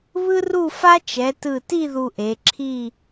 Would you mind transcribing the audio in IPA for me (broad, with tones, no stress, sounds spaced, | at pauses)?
β ɯ˥ r u˥˧ f a˥ t͡ʃ ɛ˩˧ t ɯ˧˩ t i˥˧ ð u˧ ʔ e˩˧ ǁʰ i˥˧